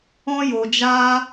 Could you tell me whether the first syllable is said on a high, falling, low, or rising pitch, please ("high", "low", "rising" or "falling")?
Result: high